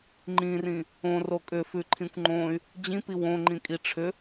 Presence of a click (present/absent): present